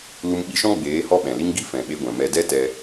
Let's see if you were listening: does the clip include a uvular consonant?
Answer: no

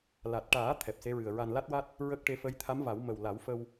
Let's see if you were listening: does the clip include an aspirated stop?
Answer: yes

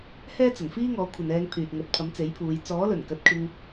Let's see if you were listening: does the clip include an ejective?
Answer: no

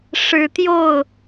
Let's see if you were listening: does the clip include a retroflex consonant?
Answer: yes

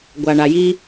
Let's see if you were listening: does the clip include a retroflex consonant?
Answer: yes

